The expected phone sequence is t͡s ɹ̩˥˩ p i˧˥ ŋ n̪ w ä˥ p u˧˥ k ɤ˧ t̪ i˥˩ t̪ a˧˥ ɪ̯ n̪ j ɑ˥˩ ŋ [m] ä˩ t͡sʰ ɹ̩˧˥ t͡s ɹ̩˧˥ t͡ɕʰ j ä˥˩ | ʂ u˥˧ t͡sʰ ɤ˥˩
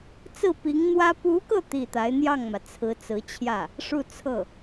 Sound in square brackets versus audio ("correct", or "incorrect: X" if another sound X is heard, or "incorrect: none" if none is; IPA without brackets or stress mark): correct